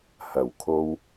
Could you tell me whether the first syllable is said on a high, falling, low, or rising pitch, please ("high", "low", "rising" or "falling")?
low